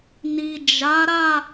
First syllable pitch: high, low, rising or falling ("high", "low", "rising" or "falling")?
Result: low